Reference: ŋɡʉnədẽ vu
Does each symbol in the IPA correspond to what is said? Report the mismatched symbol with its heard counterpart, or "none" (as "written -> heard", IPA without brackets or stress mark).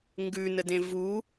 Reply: none